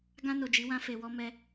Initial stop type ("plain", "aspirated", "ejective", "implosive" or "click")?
plain